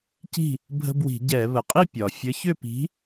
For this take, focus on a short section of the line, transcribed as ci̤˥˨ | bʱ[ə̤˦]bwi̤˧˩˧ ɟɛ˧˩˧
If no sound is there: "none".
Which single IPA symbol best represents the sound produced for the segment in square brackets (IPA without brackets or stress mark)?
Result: ə̤˦